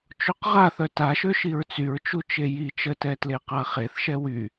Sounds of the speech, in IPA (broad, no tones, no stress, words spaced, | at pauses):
t͡ʃoqʁaθœ taʃø ʃiɹt͡syɹt͡ʃu t͡ʃeji t͡ʃətɛtle qaχeθʃɛ wy